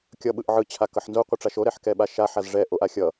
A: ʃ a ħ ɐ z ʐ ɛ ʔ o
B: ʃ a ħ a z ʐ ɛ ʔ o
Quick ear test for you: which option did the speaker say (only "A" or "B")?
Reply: B